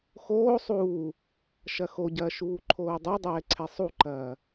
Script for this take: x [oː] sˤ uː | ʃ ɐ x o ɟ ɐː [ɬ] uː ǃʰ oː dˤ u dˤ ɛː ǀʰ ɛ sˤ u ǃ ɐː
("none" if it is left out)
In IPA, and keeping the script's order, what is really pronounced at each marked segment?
oː, ʃ

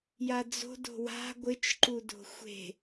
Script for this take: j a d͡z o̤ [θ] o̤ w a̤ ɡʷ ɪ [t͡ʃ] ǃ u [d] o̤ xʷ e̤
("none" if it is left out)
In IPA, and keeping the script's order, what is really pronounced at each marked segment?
d, t͡ʃ, d

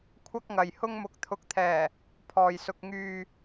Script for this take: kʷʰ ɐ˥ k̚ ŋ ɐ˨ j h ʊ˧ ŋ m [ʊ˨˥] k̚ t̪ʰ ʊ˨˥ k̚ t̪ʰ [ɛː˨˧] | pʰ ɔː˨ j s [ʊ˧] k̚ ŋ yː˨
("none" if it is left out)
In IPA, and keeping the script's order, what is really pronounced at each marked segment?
ʊ˨˥, ɛː˨˩, ʊ˧

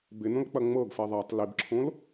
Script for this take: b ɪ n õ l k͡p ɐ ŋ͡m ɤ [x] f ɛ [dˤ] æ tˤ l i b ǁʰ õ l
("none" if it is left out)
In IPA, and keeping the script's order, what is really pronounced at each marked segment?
ɡ, ðˤ

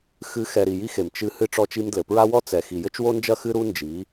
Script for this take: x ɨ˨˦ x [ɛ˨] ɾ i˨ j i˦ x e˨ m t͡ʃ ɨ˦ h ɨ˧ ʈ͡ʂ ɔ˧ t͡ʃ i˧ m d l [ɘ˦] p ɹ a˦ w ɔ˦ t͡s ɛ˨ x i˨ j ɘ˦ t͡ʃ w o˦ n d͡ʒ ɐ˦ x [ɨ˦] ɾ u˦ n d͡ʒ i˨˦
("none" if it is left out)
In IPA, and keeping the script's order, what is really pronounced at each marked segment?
ɛ˨, ɘ˨, ɨ˦

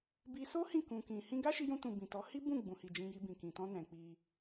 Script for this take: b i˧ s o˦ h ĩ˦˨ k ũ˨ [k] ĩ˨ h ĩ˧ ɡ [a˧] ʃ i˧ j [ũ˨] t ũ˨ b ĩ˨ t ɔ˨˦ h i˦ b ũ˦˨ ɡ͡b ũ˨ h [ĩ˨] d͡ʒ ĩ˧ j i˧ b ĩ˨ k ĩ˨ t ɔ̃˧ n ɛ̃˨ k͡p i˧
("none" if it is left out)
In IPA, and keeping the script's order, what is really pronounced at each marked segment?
k, a˦, ũ˧, i˨

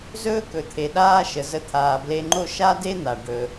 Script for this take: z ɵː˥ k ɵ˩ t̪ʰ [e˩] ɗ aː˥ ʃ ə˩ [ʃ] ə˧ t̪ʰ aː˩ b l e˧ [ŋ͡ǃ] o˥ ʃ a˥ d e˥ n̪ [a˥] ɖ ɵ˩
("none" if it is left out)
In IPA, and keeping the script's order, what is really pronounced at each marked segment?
e˩, z, ŋ͡ǃ, a˩

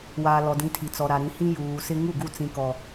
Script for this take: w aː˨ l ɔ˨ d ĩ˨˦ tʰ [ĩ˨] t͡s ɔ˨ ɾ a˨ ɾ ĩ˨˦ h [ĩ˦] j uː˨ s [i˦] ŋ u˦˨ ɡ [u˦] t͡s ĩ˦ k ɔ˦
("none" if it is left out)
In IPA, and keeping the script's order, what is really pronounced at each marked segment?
i˨, ĩ˦, ɪ˦, u˦˨

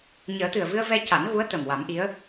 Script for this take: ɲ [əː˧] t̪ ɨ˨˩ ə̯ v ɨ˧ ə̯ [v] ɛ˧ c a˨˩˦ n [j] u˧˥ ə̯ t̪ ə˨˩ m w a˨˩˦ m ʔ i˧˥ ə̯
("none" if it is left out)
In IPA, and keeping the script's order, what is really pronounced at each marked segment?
əː˨˩˦, v, ɣ

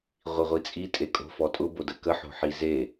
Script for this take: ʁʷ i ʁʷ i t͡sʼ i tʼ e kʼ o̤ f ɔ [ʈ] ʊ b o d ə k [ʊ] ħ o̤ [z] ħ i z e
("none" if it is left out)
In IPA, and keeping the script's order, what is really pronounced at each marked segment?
tʼ, ə, none

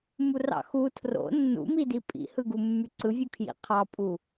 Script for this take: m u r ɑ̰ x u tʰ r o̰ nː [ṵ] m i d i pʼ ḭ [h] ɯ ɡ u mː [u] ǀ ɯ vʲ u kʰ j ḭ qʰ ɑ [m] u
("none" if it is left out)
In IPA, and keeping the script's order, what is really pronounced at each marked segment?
ṵ, h, y, pʼ

